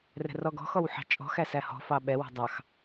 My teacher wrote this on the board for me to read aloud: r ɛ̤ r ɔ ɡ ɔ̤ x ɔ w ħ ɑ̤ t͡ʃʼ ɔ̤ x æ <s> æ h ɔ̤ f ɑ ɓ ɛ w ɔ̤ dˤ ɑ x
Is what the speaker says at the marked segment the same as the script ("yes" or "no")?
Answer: yes